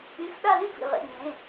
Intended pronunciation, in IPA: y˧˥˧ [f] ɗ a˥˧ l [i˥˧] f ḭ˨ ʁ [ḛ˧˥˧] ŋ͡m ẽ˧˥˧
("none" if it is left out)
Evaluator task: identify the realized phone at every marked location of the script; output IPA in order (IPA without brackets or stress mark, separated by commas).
f, y˥˧, ḛ˧˥˧